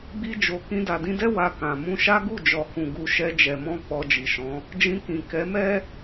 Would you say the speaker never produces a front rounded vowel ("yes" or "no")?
yes